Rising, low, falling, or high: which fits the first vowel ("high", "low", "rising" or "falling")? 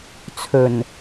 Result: low